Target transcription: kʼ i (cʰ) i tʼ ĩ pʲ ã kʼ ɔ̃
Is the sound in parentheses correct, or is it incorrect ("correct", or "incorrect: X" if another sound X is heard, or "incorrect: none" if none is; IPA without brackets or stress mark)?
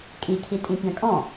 correct